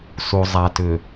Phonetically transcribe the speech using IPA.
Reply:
s u˨ zˤ a˨ t ʏ˨

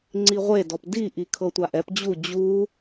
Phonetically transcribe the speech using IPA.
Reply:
ŋ͡ǀ i ʁʷ e d ɔ p d i ʔ i kʰ ɤ tʷ a ʔ ɛ p d͡ʑ u d͡ʑ u

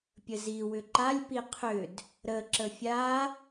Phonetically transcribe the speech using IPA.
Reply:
pʲ ə z i w ʏ ǃ a lʲ p i qʰ ʏ d | ɾ ə ǁ ə fʲ a

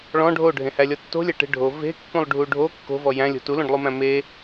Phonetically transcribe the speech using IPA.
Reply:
ɭ ɔ̃ ɖʱ o ɖʱ ẽ h æ lʲ ɔ tː o̤ lʲ æ ʈ e̤ ɖʱ o v e̤ kː ũ lˠ ɖʱ u ɖʱ o kː o̤ v ɔ j æ̃ lʲ o̤ t u l õ ɖ lˠ u m æ̃ m e

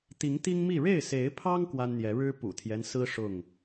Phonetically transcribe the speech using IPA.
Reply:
t̪ i˨˦ ŋ t̪ i˦ ŋ m i˥˨ ɻ e˥˨ ɪ̯ s e˨˦ ɪ̯ pʰ ɑ˦ ŋ k w a˦ n n̪ j ɛ˨˦ ɻ ɻ̩˦ p ṵ˨˩ t̪ʰ j ɛ˦ n s ɹ̩˦ ʂ ʊ˥˨ ŋ

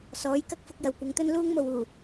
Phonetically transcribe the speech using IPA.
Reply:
s ɔː˨˥ j k ɐ˥ k̚ f ʊ˧ k̚ j ɐ˨ w kʷ ɐ˨˧ ŋ t̪ ɵ˥ n l uː˥ ŋ m o˨ w uː˨˩

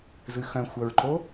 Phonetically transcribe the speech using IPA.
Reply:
z ɨ x œ̃ xʷ œ ɹ ǃ o

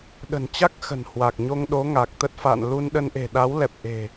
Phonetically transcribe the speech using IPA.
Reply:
ɗ ə̤˨˩ n t͡ɕ a˦˥ k̚ x ə̤˨˩ n h w a˨˩ k̚ ɲ o˧ ŋ ɗ o˨˦ ŋ a˨˩ k̚ t̪ ə˦˥ t̚ f a̰˧˨ n l u˧ n ɗ ə˧ n ʔ e̤˨˩ ɗ a˨˦ w l ɛ˨˩ p̚ ʔ e̤˨˩

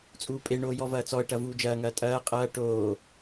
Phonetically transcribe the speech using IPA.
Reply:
t͡sʼ uː pʼ e ɳ oː j ɔ v ɐː t͡s ɔ ə̯ ʈ ɐ v uː d͡ʒ ɐː ŋ ɐː tʼ ɐː qʼ ɐː ʈ oː

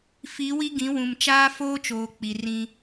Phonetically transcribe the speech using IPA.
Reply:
f i˨˦ w i˦ ɡ ĩ˨˦ w ũ˨ m t͡ʃ aː˦ f oː˦ t͡ʃ oː˨ k͡p i˨ r ĩ˦

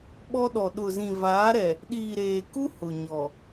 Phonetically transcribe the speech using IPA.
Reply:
ɓ ɔ˦ ɗ ɔ˨ ɗ ʊ˨ z ĩ˨ v aː˨˦ ɾ ɛ˨ | ɗ iː˨ ɾ eː˨ k u˦ h ʊ˨ ɲ ɔ˨

